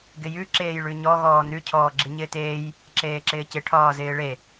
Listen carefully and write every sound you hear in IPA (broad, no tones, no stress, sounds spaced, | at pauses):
ɡ ɪ j ʉ ǁ eː j ɭ ʉ ɲ ɔ ɣ ɔː n ʉ cʰ ɔː ɡ͡ǁ i ɲ ɪː t eː j | ǁ eː ǁ ɪː c ɪ ʈʰ ɒː z ɪː ɭ e